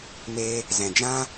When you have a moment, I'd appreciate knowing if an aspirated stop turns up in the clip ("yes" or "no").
no